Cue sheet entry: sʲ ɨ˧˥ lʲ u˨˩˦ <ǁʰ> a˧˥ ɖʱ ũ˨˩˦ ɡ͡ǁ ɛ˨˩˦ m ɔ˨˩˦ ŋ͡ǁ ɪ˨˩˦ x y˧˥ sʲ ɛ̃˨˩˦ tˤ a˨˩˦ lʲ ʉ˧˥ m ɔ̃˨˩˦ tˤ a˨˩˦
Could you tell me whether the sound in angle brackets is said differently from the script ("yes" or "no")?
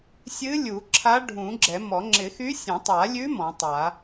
no